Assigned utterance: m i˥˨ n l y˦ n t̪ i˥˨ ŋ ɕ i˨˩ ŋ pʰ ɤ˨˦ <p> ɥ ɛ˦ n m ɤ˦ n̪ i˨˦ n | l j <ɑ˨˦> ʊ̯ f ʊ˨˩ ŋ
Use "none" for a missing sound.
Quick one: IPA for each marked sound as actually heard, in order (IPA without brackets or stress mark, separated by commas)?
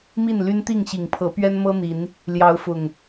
p, ɑ˨˦